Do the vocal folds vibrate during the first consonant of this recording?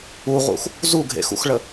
yes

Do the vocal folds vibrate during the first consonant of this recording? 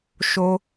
no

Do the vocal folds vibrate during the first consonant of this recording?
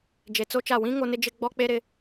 yes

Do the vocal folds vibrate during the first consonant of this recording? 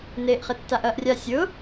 yes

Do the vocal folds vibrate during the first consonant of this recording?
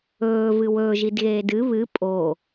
yes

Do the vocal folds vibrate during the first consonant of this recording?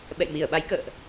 yes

